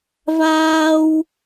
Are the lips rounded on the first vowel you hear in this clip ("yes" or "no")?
no